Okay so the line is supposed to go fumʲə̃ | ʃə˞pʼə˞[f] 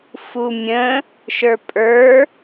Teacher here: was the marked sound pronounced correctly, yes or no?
no